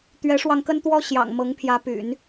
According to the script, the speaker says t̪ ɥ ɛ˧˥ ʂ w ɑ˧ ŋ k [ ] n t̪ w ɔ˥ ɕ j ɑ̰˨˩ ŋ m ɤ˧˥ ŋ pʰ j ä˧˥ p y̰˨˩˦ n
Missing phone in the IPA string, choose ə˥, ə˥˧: ə˥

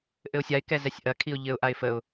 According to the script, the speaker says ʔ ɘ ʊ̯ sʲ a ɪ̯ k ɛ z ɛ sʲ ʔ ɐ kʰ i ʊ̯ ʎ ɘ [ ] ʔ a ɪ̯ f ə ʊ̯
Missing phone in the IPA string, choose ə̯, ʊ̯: ʊ̯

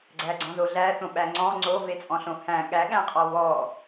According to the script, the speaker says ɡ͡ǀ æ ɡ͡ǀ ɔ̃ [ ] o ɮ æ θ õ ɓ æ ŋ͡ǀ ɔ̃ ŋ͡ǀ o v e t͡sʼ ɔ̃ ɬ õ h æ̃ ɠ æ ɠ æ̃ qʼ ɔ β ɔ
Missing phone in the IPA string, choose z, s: z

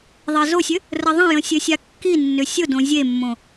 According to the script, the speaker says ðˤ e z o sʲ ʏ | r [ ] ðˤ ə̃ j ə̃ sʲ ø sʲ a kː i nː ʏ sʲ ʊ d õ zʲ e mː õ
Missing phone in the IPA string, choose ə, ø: ə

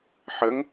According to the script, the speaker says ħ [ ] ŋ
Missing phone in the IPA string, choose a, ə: ə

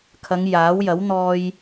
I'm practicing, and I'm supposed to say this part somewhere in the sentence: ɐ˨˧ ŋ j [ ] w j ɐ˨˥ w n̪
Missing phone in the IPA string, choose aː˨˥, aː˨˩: aː˨˥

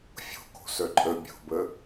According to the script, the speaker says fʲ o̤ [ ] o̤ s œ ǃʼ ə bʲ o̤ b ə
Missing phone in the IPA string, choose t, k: k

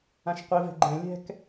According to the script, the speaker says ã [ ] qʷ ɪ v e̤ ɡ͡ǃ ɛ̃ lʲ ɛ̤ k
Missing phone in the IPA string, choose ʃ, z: ʃ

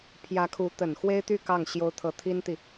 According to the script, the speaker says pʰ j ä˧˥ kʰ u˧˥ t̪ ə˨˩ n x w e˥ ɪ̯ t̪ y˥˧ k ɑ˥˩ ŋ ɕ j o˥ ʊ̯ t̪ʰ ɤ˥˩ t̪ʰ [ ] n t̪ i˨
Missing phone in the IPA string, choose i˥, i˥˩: i˥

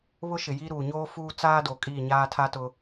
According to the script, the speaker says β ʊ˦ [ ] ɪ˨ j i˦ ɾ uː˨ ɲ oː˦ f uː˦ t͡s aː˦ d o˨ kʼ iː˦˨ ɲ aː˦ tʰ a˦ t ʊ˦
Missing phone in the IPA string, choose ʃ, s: ʃ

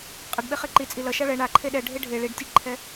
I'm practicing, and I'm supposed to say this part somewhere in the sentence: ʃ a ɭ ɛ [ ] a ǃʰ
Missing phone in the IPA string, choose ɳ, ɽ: ɳ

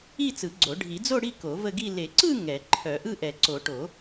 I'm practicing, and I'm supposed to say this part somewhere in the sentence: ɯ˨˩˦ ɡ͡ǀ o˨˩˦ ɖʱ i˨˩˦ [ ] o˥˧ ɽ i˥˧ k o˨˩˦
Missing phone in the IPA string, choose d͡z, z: d͡z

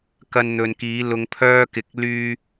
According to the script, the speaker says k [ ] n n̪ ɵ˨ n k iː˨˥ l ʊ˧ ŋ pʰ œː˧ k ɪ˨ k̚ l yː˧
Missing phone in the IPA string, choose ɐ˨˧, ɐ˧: ɐ˧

